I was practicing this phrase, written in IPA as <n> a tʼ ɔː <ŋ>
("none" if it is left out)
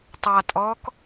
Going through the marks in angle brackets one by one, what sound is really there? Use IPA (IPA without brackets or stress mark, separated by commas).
tˤ, k